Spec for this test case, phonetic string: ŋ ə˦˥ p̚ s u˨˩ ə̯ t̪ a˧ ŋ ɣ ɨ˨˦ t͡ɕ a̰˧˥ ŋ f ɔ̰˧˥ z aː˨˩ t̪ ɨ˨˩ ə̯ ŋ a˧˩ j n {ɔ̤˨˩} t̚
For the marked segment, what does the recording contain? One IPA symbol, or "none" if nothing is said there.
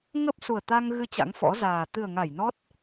ɔ˦˥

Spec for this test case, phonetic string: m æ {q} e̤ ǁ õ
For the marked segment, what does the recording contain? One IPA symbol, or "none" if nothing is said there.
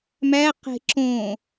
q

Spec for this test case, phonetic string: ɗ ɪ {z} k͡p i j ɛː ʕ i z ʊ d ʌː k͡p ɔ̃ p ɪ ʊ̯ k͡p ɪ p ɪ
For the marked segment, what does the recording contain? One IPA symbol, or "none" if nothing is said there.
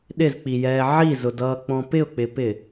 z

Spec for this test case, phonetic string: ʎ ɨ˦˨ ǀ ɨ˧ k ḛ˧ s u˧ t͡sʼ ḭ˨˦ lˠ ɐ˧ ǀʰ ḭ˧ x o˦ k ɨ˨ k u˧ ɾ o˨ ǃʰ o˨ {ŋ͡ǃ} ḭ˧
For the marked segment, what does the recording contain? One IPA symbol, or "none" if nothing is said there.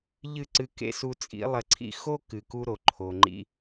ŋ͡ǃ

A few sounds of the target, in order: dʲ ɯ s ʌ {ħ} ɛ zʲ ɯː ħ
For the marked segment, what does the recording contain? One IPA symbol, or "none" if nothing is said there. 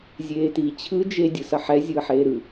ħ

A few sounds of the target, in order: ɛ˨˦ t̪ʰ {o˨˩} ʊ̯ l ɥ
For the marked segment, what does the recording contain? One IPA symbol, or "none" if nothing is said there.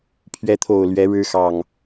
o˨˩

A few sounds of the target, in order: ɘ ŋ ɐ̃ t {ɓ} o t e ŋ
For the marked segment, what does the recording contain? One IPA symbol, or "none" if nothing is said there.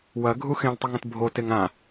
bʱ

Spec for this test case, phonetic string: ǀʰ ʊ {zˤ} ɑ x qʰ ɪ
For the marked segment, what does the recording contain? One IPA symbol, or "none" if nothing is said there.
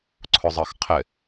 zˤ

